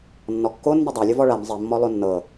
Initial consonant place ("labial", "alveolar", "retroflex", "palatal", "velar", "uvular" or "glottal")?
alveolar